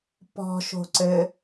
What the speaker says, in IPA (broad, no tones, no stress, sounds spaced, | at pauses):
p ɔ̤ ʃ o̤ ǀ ɘ